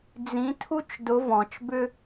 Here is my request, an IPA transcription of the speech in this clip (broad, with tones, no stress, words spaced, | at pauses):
d͡zĩ˧˥tʰu˥t͡ʃ dʊ˧˥vɔ̃˩˧t͡ʃbʏ˥